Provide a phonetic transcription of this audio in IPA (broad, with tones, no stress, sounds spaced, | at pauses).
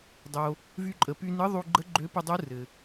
dˤ o˩ | v y˧ ǃʼ ə˩ p y˧ n ɯ˧˥ ðˤ u˧ ɡ͡ǃ ə˧˥ ɡ͡ǃ ø˧˥ p ɯ˧ dˤ u˧˥ r ɘ˩